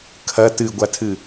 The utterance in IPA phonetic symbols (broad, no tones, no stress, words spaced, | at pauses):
kʰɐ tɨɡʷatʰɨ